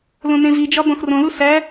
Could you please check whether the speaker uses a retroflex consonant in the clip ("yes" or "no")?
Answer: no